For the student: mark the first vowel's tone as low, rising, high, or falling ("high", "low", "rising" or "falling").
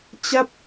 falling